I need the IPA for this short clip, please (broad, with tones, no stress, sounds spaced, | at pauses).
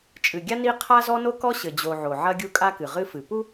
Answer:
t͡ʃʼ ɨ˨ ɡʲ a˦ n i˦ qʰ a˦ z ɔ˦ n o˦ k ɔ˦ ɕ ɘ˨ d͡ʑ o˨ ʕ o˨ ʕ ɐ˦ ɡʲ u˦ kʼ a˦ k ɨ˨ ʁ ɨ˦ f ɨ˨ p u˦